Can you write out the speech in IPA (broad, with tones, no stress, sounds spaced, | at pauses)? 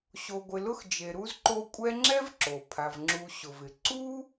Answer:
ɕ o˨ ɡʷ ɪ˨ l ʊ˦ x d͡ʒ e˨ ɾ u˥ z ǃ o˦ kʷʼ ɛ˦ ŋ͡ǁ ɛ˥ v ǁ o˩ pʰ a˩ v ŋ͡ǁ u˨ ɕ ʊ˩ v ɪ˩ ǀ u˥